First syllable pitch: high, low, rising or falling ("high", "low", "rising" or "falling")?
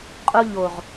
high